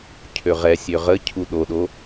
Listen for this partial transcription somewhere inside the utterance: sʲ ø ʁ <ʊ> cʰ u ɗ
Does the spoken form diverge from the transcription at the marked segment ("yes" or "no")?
yes